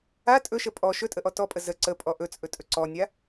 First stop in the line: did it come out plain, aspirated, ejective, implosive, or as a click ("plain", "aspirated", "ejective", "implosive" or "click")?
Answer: ejective